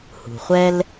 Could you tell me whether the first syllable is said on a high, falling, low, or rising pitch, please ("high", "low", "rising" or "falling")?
low